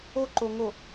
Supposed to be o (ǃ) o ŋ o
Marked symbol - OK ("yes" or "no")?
yes